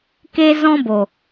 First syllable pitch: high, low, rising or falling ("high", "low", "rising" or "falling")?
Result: high